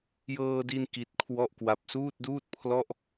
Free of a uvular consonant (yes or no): yes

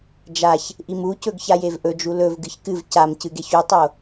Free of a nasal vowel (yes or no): yes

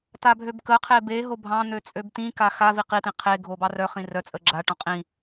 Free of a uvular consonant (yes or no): no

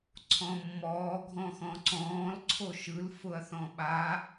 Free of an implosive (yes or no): no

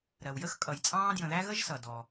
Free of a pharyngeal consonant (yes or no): yes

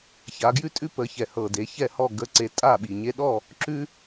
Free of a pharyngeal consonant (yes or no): yes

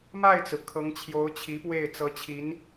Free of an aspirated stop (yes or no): no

